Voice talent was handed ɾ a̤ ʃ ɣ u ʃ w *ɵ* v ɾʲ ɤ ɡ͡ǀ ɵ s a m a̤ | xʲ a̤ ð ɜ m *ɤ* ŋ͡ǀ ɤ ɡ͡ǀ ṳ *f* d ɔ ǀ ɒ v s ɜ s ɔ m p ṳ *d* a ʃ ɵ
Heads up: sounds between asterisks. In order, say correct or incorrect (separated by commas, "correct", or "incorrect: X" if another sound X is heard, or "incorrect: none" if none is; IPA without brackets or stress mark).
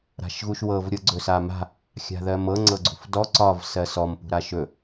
incorrect: ɤ, correct, correct, incorrect: ɾ